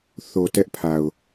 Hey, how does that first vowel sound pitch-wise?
low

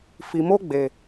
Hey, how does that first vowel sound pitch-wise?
low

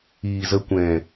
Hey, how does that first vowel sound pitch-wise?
low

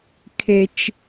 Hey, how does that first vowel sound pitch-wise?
high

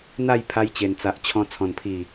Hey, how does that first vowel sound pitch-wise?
falling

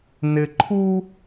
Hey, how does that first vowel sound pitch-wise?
low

